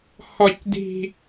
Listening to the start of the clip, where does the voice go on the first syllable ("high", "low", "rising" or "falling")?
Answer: high